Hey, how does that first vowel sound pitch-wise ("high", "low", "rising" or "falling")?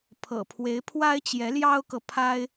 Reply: low